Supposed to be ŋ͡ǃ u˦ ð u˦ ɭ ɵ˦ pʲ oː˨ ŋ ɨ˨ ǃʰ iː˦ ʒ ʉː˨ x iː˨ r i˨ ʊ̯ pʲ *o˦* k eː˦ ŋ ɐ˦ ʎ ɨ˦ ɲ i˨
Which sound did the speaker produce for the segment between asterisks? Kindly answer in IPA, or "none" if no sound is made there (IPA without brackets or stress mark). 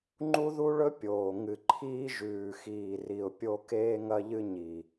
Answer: o˦